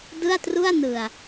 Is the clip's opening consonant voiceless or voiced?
voiced